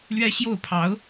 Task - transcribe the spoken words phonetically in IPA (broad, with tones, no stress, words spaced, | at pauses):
lɥɛ˥ɕjo˥˩ʊ̯pʰɑ˧˥ʊ̯